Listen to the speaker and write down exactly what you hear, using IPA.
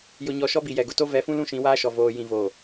j ʊ˦ ɲ ɔ˦ ʃ ɔ˦ b i˨ j ɛ˨ ɡ ʊ˨ t o˦ v ɛ˨˦ f ũ˦ l ũ˦ ʃ ĩ˨˦ w aː˦ ʃ ɔ˨ v oː˨ j ĩ˨ v o˨

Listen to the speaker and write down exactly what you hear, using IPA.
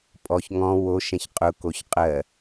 pʼ ɔ ç ŋ ɔ̃ w o ʃ ɛ̃ ç qʼ ʊ k o ç qʼ ɜ

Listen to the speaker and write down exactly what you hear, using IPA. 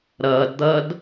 ɾ ʌː d d̪ ʌː d

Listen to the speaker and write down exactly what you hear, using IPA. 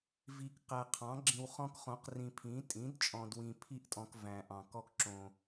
v i˨ k q æ˨ qʰ ɑ̃˩˥ ɡ͡ǁ ĩ˨ w χ ɔ̃˦ k χ õ˩˥ q r ĩ˨ pʰ ĩ˩˥ tʼ ĩ˩˥ d t͡ʃʼ ɔ̃˨ d w ĩ˨ pʰ i˦ ʔ tʼ ɔ̃˨ k v æ̃˨ ʔ ɑ̃˨ k ɔ˦ k ǁ õ˨

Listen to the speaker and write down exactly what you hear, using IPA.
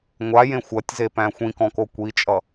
ŋʷ a j ẽ xʷ ɐ tʲ z e p æ̃ xʷ ĩ k ɔ̃ k o kʷ i t͡ʃʼ ʌ

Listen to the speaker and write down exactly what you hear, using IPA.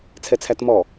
t͡sʰ ɛ t͡sʰ æ t m ɔ

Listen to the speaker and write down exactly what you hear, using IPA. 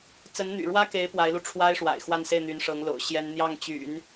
t͡s ə˧˥ n n̪ y̰˨˩ ɻ w ä˥ k e˧˥ ɪ̯ p w a˧˥ ɪ̯ l u˧ ʈ͡ʂʰ w a˥ ɪ̯ ʂ w a̰˨˩ ɪ̯ x w a˥˧ n s e˥˩ ɪ̯ n̪ y˧˥ n ʂ ɤ˧˥ ŋ l o̰˨˩ ʊ̯ ɕ j ɛ˥ n n̪ j ɑ˥˩ ŋ t͡ɕ y̰˨˩˦ n

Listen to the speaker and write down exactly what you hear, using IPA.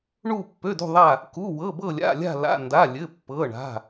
ɳ u˧˩ pː ø˩˧˩ d ṳ˧˩ ðˤ a˧˩ | k u˩˧˩ w ɤ˩˧˩ b ɤ˧˩ lʲ a̰˩˧˩ lʲ a̤˧˩ l a̰˩˧˩ n d a˩˧˩ lʲ ɘ˩˧˩ pː ɤ˩˧˩ ɳ a̤˩˧˩

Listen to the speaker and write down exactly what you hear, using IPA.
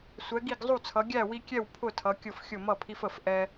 sʷ ɛ˨˦ ɡ i˥˨ ɡ zˤ u˥˨ t͡sʰ ʌ˨˦ ɡʲ æ˥˨ w i˦ kʲ ɛ˥˨ w pʰ ʊ˥˨ tʰ ʌ˨˦ kʲ ʊ˥˨ f xʲ ʊ˥˨ m ʌ˥˨ pʰ i˦ f ə˥˨ f ʔ ɛ˦

